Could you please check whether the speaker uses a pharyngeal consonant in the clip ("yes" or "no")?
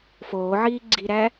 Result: yes